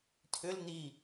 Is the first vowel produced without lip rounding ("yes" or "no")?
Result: no